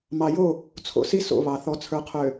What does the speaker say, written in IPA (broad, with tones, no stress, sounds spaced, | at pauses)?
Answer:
m ɑ˨ j o˦˨ | t͡sʰ o̰˦ s i˦ s o̰˦˨ β ɑ˨ θ ɔ˨ t͡sʰ ə˞˨ qʰ ø˨